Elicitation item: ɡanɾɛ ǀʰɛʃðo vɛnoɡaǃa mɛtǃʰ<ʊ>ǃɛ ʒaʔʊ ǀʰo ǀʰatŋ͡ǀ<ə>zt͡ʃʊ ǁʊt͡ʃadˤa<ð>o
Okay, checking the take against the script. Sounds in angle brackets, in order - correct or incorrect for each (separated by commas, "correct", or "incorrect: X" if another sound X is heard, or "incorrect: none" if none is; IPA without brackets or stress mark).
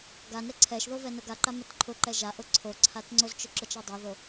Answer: correct, incorrect: ʊ, correct